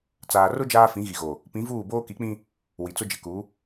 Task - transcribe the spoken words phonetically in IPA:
t͡s aː˨ r ʊ˦ d͡ʒ aː˦ f ĩ˨˦ ɣ i˨ ɣ o˨ | p ĩ˨˦ v uː˦˨ b oː˦ k i˨˦ k͡p ĩ˦ | w i˨ t͡s ʊ˦ d͡ʒ ɪ˨ k u˨˦

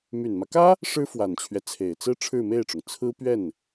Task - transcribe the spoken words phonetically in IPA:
m y˨˩ n m ä˦ k ä˥ | ʂ ɻ̩˥ f w a˨˩ n t͡ɕʰ ɥ ɛ˦ t͡sʰ e˨˩ ɪ̯ t͡s ɹ̩˥ ʈ͡ʂʰ ɻ̩˥˧ m e˥˩ ɪ̯ ʈ͡ʂ ʊ˩ ŋ t͡sʰ ɹ̩˥ p ɥ ɛ˥˩ n

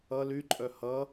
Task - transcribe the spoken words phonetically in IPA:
ʌ l y ǃʼ œ h ʌ

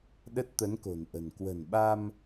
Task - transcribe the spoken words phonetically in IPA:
ɗ ə˦˥ t̚ t̪ ə˨˦ n k o̤˨˩ n ʔ ə̤˨˩ n k w ə̤˨˩ n ɓ a˧ m

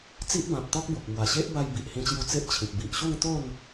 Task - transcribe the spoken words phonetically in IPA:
t͡s i˦ ʔ b ã˨ p̚ t̪ ɔ˦ k̚ b o˨ k̚ m w a˨˩ ɕ e˦ ʔ b a˧ j b i˨ ʔ h ĩ˧ t͡ɕ j u˧ t͡s e˦ ʔ t͡ɕʰ ĩ˨ k̚ b i˨ ʔ ɕ u˥˧ ŋ t̪ o˥˧ n

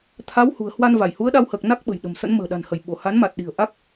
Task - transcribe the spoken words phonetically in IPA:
t̪ʰ a˨˦ w h ṳ˨˩ ə̯ h w a˧ n v a˧˩ j h u˨˦ ə̯ ɗ a˧ w h əː˨˩ k̚ n a˦˥ k̚ ɓ ə̤˨˩ j ɗ ə̤˨˩ m s ə̰˧˥ n m ə̤ː˨˩ ɗ a̤˨˩ n h ə˧˩ j ɓ o˧˩ h a˨˦ n m a˨˩ t̚ ɗ i̤˨˩ ə̯ ʔ a˦˥ k̚

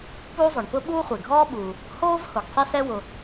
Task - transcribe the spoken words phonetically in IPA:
p uː˥ zˤ ʊ˩ ɳ p ʊ˥ ɓ uː˥ χʷ e˩ ɡʱ ɔː˥ ɓ uː˩ | h oː˥ v h ʊ˩ ɡ sˤ i˥ s ɛ˥ w ʊ˩

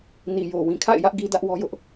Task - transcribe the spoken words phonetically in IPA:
n i˨ j o˨ w ĩ˨ kʰ a̰˦˨ ɪ̯ j ä˦ ʔ ɡ i˦ d ä˦ ʔ w ɔ˦ j ʊ˦ ʔ

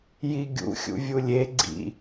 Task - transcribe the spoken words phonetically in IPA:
j i ɡʲ ṵ xʲ ṵ vʲ u lʲ e ɡ͡ǀ ḭ

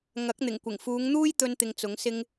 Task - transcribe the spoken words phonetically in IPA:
ŋ ɐ˨˥ k̚ n̪ ɪ˨˩ ŋ kʷ ɪ˨˩ ŋ f uː˨˧ ŋ n̪ uː˥ j t̪ ɵ˧ n t̪ ɪ˧ ŋ t͡s ʊ˨˥ ŋ s ɪ˥ ŋ

